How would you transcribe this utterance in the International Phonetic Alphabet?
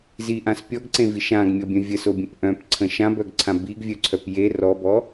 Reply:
ziʔãs pʲɔɡǀẽvi ʃãɡmʲɔbʲœ̃ vʲəsobʲə̃p ʔœ̃pǀʰə̃ ʃãbœɡǀʰã biɡvʲœǀʰœp je rɔbɔ

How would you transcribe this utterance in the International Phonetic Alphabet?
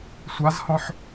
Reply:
sʷazhɔ̃ħ

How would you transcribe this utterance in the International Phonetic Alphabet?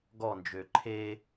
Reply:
ɡɔnd͡ʒø ǃʰe

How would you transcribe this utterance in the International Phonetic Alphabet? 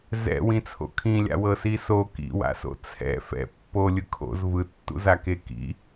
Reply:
zɛ̰wĩ t͡sʰo̰kʰĩlʲa̰ wɤsiso kḭwa̰so̰ t͡sʰɛ̰ fɛ̰ pːolʲɯ kʰo̰z vɯtːṵzake kḭ

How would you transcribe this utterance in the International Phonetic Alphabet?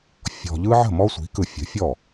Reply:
fʲɔ̤˨ ʎɯ˦ ʕə̤˥˩ mɔ˦sʷi̤˩˥kɯ˨ fʲə̤˩˥fʲɔ˥˩

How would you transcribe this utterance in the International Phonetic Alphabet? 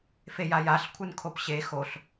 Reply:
fejajaɬ kʷʰɯnkʰopɕe xoɬ

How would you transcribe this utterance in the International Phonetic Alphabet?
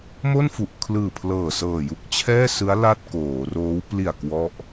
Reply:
mo˥˩nfu˨˩ʔkʰlɯː˨˩pʰlɤː˨˩ sɤː˨˩ju˦˥k̚t͡ɕʰɛː˥˩sɯ˦˥a̯ la˥˩t̚koː˩˦ roː˦˥w pli˨˩a̯ kwɔ˦˥ʔ

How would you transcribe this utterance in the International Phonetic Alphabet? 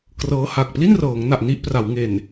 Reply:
krɤː˦˥ha˨˩k̚ pli˥˩nrɤː˩˦ŋna˨˩ʔ ni˥˩ʔpra˩˦w ŋe˨˩n

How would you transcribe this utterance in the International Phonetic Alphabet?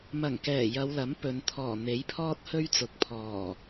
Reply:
mɐ˨˩ŋkɛː˨˩ jɐ˨˧wlɐ˨˥m pɵ˨˧n t̪ʰɔː˨˩ n̪e˨˥jpʰɔː˥t̚hɵ˥ɥt͡sʊ˨˥k̚ pʰɔː˨˩

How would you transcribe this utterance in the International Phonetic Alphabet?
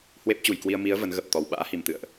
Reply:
hwe˦˥p̚t͡ɕu˧˩jkwi˧ə̯ mi˨˦ə̯ və˨˦nɣə˨˩p̚t̪ɔ˨˩w ɓa̰ː˧˥hi˨˩mt̪ɨ̰˧˨ə̯ʔ

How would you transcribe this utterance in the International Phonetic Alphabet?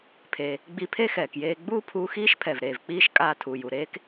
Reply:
pʰeː˩ | ɡ͡bi˧pʰe˥xɛː˩kjeː˧ ɡ͡buː˥pʰuː˧ xiː˥ʃ pʰɛ˩v ɾeː˩vk͡piː˥ʃ kʼaː˧tʰuː˩ju˩ ɾeː˥k

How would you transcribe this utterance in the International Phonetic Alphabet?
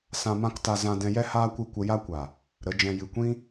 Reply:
sã˧mã˦kta˧ zã˧ dɛ̃˧jɛ˦ haː˦kʷɨ˦˨kʷə˧ ja˦kʷa˨ | ɾə˨˦d͡ʒɛ̃˧ jɨ˨kʷĩ˦

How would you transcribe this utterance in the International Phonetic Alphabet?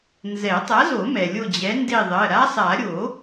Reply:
nzɛ˨˩˦tˤa˨˥zo˨˩˦mɛ˩ lʲo˦˨d͡ʑɛ˨˥nde˦˨ðˤɜ˩˧˩ ɾa˦˥sˤa˨˩˦ ɾʲo˨˩˦

